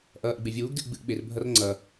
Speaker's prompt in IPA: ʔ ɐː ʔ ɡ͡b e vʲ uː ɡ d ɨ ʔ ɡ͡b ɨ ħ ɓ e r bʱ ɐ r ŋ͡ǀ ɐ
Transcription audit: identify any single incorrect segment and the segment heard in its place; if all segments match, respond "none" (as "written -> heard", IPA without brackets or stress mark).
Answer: ħ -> ʔ